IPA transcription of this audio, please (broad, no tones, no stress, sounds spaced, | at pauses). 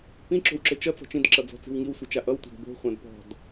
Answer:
p ĩ ǁ o̤ w ǁ ɘ t͡ʃ ʌ t͡s ɔ̤ t͡ʃ ĩ d ǁ ʌ d͡z ɔ̤ t͡s i̤ w ŋ i w sʷ ɘ t͡ʃ a ʔ ʌ w tʷ a̤ d b o̤ χʷ ã d p ɔ̤ d